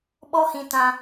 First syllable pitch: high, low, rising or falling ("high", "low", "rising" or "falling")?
high